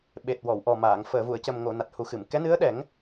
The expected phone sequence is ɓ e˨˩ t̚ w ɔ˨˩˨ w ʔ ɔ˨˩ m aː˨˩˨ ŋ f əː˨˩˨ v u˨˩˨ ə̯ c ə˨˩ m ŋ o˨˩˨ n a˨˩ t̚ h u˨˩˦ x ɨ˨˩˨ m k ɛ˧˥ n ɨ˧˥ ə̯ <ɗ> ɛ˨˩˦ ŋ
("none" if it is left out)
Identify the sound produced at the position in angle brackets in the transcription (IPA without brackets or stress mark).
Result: ɗ